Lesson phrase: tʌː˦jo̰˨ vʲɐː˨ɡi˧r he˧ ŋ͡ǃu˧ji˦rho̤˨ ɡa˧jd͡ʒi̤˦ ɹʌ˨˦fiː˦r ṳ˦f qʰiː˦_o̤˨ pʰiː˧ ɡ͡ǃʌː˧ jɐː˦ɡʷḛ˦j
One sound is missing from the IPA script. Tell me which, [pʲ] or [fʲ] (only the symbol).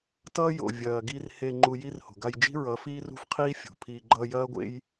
fʲ